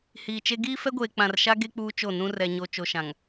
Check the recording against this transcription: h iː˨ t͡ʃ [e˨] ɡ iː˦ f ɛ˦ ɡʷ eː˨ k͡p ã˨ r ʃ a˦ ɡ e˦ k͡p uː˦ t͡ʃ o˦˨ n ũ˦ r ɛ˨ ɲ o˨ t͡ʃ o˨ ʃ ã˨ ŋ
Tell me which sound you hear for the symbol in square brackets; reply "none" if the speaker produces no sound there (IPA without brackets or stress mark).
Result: e˦